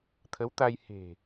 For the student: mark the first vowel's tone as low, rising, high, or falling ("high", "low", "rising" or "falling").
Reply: rising